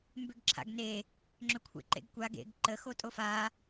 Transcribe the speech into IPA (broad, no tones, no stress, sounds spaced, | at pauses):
m b ʏ ɡ ǁʰ a̰ ɡ n e | ŋ͡ǁ ʏ kʷʰ ḛ ǃ ḛ ɡ kʷ a ɡ ḛ ɡ ǃ ə x o tʼ o f a